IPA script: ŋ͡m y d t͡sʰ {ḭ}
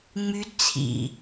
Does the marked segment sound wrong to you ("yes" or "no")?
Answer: no